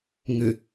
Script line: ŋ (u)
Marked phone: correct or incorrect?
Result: incorrect: ʏ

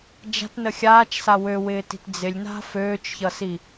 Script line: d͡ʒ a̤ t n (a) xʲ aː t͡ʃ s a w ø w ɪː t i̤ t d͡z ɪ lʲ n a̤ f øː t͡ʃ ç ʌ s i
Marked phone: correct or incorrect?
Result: incorrect: ə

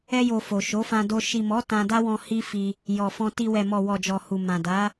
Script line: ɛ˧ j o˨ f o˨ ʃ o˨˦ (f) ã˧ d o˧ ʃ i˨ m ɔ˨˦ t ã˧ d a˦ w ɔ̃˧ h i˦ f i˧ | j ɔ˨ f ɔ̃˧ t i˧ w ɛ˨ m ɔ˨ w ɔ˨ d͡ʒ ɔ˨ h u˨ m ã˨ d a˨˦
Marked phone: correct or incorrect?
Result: correct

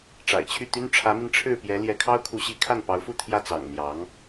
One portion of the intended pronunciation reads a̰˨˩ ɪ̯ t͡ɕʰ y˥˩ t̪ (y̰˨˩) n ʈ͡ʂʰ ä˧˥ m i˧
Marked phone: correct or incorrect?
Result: incorrect: y˥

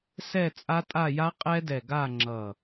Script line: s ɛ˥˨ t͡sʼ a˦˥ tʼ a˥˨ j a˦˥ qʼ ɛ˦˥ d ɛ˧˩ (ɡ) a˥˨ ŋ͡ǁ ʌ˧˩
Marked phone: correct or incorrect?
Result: correct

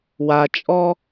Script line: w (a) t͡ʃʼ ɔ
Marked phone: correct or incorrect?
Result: correct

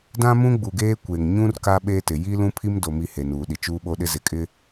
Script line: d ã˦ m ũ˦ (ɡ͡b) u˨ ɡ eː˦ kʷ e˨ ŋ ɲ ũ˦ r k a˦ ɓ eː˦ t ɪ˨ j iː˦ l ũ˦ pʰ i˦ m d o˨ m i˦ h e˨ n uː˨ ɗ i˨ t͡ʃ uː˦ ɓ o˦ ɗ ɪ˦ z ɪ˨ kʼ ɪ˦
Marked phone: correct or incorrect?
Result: correct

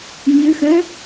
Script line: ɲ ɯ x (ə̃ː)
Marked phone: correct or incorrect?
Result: correct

